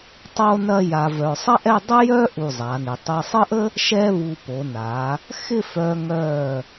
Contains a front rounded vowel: yes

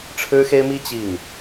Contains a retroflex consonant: yes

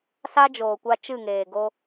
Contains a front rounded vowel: no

